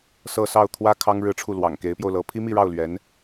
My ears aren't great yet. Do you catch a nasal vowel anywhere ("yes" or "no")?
no